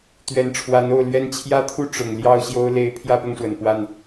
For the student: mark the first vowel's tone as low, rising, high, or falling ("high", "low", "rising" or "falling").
rising